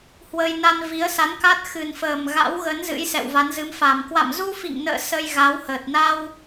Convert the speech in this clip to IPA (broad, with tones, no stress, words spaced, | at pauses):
hwə˧j na˧nvi˨˦ə̯sa˨˦nka˦˥t̚ xɨ˨˩nfəː˨˩m ɣa̰˧˥wɣə˨˦n zɨ̰˧˥jsɛ̰˧˨wva˨˦nzɨ˨˦m fa˨˩m kwa̰˧˨mzu˧fḭ˧˨ŋnə̰ː˧˨ sə˧jɣa˨˦whəː˨˩t̚ na˧w